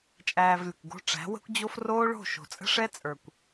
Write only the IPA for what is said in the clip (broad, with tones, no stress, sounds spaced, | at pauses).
t͡ʃʼ æː˧ v lʲ ə̤˨ kʷ ɡ o̤˧ ʈ͡ʂ æ̤˨˦ w ə̤˦ kʷ d͡ʑ o˦ f r oː˦ ɭ o̤˦˨ ʃ o̤˨ t͡sʼ ə̤˦ ʂ ɛ˦ t͡sʼ ə˞˨ kʷ